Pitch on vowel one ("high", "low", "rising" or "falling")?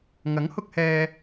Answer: rising